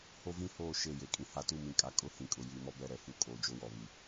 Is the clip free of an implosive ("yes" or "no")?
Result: yes